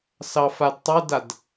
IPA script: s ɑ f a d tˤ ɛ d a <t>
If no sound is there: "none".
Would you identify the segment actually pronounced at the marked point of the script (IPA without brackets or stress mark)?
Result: d